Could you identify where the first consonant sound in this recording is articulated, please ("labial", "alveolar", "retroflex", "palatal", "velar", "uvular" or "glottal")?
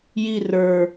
palatal